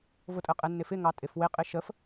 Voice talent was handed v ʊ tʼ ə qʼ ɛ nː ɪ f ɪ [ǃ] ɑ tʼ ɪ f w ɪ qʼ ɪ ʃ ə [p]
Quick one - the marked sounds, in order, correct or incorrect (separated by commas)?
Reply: incorrect, incorrect